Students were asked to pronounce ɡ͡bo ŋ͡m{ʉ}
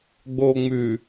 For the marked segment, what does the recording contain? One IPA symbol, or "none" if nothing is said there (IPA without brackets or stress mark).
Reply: ʉ